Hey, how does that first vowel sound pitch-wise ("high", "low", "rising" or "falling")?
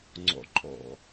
low